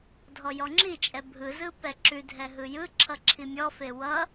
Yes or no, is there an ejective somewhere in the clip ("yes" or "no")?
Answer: yes